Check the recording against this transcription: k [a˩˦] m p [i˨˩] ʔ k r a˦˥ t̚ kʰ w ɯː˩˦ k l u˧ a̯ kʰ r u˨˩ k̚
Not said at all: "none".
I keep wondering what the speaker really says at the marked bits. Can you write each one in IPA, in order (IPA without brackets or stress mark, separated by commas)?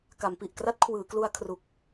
a˩˦, i˨˩